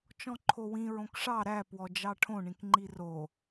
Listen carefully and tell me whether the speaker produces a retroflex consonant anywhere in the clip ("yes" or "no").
yes